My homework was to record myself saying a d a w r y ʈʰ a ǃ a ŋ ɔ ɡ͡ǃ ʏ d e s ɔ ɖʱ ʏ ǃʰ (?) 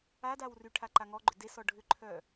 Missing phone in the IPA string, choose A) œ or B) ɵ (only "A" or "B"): A